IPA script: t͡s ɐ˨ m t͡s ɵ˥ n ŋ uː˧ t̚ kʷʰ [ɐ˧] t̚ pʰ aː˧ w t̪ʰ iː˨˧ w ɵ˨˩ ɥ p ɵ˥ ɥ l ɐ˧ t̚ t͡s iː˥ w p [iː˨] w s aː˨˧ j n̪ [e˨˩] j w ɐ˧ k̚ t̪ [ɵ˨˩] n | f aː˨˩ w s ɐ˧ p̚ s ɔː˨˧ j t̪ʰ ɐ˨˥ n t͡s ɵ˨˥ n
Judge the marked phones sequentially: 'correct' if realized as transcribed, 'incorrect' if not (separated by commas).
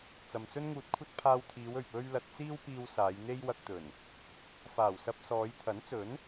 incorrect, incorrect, incorrect, correct